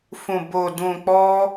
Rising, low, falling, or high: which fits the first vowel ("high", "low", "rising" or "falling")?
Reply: low